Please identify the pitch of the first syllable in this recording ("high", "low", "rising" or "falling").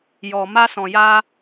low